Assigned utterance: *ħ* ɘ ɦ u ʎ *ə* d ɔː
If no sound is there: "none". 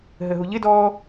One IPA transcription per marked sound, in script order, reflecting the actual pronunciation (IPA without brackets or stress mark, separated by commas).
ɦ, ɪ